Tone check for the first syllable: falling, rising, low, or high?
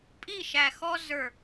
falling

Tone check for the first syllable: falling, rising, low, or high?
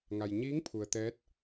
low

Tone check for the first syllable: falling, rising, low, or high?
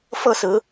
falling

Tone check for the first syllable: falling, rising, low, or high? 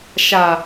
low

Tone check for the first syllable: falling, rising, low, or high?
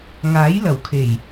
rising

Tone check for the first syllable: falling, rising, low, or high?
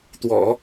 low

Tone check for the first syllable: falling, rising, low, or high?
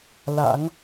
rising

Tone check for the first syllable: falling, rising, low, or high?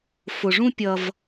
low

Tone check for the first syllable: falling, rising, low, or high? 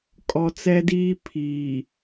low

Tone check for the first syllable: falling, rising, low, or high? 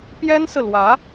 high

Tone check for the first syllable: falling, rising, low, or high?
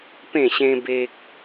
falling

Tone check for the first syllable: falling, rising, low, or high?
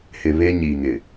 low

